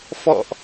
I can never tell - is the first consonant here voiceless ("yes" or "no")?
yes